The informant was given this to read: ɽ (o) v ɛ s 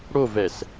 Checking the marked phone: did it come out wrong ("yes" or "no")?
no